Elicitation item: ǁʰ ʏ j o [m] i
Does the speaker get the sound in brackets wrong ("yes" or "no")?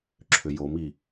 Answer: no